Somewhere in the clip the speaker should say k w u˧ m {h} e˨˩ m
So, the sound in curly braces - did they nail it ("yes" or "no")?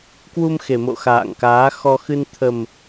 no